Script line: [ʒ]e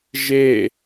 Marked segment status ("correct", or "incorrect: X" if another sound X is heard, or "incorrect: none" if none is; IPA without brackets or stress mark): correct